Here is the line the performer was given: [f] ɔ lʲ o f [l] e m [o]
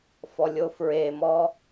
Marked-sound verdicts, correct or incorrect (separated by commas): correct, incorrect, incorrect